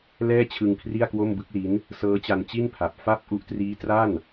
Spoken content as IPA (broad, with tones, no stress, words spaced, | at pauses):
lɛː˥˩t͡ɕʰɯ˧ŋ kʰri˥˩a̯kwo˥˩m bɯ˦˥k̚li˦˥n | sɤː˦˥t͡ɕa˧nt͡ɕi˥˩npʰa˨˩p̚ fa˥˩p̚ ʔu˦˥ʔtriː˦˥tra˥˩n